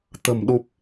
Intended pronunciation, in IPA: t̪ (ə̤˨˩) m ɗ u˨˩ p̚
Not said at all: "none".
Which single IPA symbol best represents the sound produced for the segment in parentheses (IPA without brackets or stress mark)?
ə̤˨˩